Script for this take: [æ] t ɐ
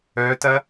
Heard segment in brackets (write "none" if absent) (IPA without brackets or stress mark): œ